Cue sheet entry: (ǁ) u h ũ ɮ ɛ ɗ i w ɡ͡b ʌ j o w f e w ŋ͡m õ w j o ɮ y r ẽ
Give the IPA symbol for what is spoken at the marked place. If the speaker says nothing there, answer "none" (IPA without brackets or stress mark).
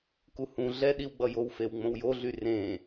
k